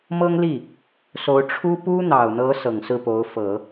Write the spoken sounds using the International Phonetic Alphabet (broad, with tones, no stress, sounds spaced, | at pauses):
m ɤ˥ ŋ l i˥˩ | s o˧˥ ʊ̯ ʈ͡ʂʰ u˥ p u˥ n̪ ɑ˨˩ ʊ̯ n̪ ɤ˧˥ s ɤ˨˩ ŋ s ɹ̩˥˩ p o˧˥ ʊ̯ f ɤ˨˩˦